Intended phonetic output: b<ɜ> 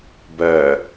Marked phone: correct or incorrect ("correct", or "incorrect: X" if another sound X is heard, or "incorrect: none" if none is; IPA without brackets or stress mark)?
correct